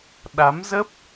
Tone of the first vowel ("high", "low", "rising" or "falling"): rising